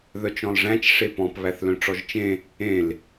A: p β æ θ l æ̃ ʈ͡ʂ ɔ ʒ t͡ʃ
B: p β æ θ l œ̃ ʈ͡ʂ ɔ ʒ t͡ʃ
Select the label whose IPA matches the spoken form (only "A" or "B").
B